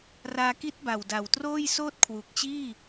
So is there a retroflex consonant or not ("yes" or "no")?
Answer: no